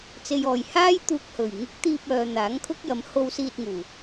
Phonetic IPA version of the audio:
t͡se˨jɔː˨˩j haː˥jt̪uː˧k̚hɵ˨˩ɥ ŋɪ˨˥k̚ t̪iː˧p̚œː˨ n̪aː˨˥ŋkʰʊ˥k̚jɐ˨˧m ho˧wsiː˧t̚ŋuː˨˩

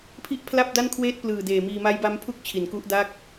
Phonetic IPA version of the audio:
pʰi˥˩ʔpʰla˥˩p̚da˥˩n kʰweː˥˩t̚plɯː˨˩ deː˨˩miː˧ ma˦˥jba˦˥mpʰu˥˩k̚ t͡ɕʰi˩˦nku˦˥ʔ da˥˩k̚

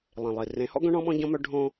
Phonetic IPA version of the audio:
lˠẽ˨lˠi˨ rẽ˨˦hɔ̰˦ɡœ̃˦ ɳɔ̃˦ɓɔ̃˦ɟɔ̃˦ mœ˦ɖʱõ˦

